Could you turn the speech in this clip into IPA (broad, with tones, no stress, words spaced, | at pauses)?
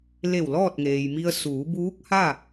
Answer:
le˧˩w lɔː˥˨t̚ŋeː˩jmi˧ə̯ suː˩˧buː˧˥k̚ha˥˨